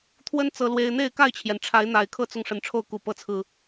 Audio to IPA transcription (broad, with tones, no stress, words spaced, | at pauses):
t̪ʰwə˦n t͡sɤ˦lwe˦ɪ̯ n̪e˥˨ɪ̯ka˥˨ɪ̯t͡ɕʰjɛ˩nʈ͡ʂʰa˨˦ɪ̯ n̪a˨˩ɪ̯kʰɤ˦t͡sʊ˨ŋ ʂə˨˦nʈ͡ʂʰo˥˨ʊ̯ku˨˩ pɤ˨˦t͡sʰɹ̩˨˩